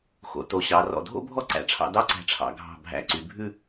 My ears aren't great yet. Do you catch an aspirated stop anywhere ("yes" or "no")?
yes